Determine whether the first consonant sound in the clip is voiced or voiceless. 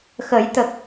voiceless